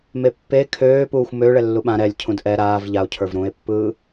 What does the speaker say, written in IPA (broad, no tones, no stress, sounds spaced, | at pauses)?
m e pː e kʰ øː p uː xʷ m ø ɭ ɛ lː u ɓ ã ɾ ɛ lʲ cʰ ũ d ʔ ɛ ɾ aː v ʎ a o̯ cʰ ə˞ v ɾ ũ e̯ pː ɯː